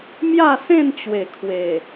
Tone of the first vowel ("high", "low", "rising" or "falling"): falling